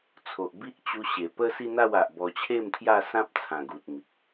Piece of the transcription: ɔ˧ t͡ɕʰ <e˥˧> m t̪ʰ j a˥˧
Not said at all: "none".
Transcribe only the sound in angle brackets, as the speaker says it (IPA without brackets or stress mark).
e˥˧